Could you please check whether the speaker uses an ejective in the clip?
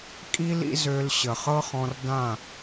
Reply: yes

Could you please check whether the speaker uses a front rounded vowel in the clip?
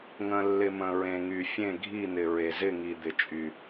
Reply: yes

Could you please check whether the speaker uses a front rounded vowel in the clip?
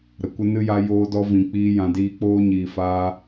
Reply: no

